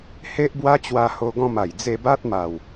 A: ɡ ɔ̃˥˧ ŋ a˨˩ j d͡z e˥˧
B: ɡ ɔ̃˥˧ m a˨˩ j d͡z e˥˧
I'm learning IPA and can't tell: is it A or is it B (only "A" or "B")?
B